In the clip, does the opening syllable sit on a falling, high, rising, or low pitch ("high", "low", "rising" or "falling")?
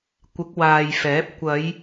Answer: rising